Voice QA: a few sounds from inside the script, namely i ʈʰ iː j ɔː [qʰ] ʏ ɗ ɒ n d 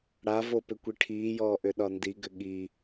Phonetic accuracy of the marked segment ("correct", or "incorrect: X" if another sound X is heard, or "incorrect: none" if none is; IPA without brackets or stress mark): incorrect: ʔ